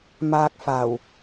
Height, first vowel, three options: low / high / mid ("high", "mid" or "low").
low